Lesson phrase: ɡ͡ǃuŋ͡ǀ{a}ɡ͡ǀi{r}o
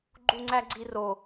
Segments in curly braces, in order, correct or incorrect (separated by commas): incorrect, correct